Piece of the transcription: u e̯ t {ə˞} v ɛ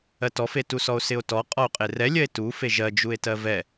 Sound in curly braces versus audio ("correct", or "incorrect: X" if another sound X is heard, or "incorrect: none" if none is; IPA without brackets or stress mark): incorrect: ɜ